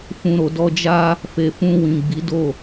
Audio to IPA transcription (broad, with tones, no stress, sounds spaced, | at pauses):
f ũ˨ ɾ o˨ d ɔ˧ d͡ʒ a˦ | f e˨ f ũ˧ w ĩ˨ ɡ͡b i˨˦ d o˦˨